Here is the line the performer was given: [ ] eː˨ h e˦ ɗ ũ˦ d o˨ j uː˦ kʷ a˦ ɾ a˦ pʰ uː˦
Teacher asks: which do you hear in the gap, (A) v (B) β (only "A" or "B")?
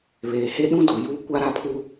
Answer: B